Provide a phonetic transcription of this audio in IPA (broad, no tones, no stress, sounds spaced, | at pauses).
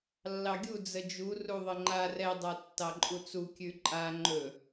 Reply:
lː ɑ ɡʲ u d͡z ə d͡ʒ u r u ðˤ ə ŋ͡ǃ a r ɛ dˤ a tː ɑ ǃʼ u t͡s u kʲ ʉ ǃʼ a ŋ͡ǃ ɵ